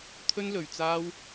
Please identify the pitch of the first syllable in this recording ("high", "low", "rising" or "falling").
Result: high